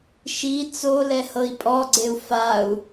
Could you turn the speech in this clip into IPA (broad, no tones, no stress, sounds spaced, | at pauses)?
ʃ i t͡s o l ɛ h ɤ i̯ pʼ ɔ ɡ͡ǀ e u̯ f a u̯